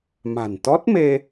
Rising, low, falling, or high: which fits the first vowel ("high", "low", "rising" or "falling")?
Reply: low